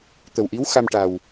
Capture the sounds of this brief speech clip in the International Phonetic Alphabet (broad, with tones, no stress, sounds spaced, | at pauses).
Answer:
t̪ ə˨˩ w ʔ i˧˥ w x a˧ m ʈ a˨˩ w